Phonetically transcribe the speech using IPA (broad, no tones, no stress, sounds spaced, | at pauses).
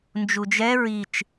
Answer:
n d͡ʒ u d͡ʒ ɛ ɹ i t͡ʃ